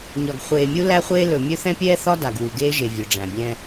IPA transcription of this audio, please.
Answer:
ɲ ɒ˨ ɡ χʷ eː˨ mʲ u˦ l æ˦ χʷ eː˦ l ɵ˨ mʲ ɵ˦ θ ɛ̃˦ pʲ ɛː˦ θ ɒ˦ d a˨ ɡ w u˨ ɡ eː˦ ʒ e˨ vʲ ɵ˨ ɖ͡ʐ æ̃˨ bʲ ɛ̃˦

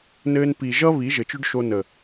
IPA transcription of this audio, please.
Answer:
n ɘː˧ n p i˨ ʒ ʌ˦ β i˨˦ ʒ ɘ˨ t͡ʃ ʏ˦ ɖ ʃ o˧ n ə˨

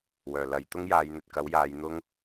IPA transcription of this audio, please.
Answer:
w œː˨˩ l ɐ˨˧ j t̪ ʊ˥ ŋ j aː˨˧ j n̪ ɵ˨ t̚ k ɐ˨˥ w j aː˨˧ j n̪ ʊ˥ ŋ

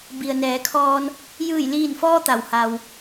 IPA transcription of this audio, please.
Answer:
b i˩ ə̯ n ɛː˩˧ kʰ ɔː˧ n | j ɯː˧˩ j l iː˧˩ n f ɔː˧ t̪ a˩ w h a˩ w

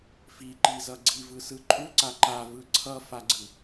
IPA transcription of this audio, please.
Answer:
f i ǃ i z ʌ ɡ͡ǀ i v ɯ s ɯ ǃʼ u ǀ a ǃ a v ɯ ǀʰ ʌ f a ɡ͡ǀ ɯ

